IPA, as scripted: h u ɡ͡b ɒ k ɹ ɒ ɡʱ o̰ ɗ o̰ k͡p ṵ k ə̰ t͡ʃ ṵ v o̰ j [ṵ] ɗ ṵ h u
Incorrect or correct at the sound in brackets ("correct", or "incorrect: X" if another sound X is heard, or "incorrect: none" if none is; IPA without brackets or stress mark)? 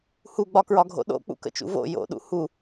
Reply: incorrect: o̰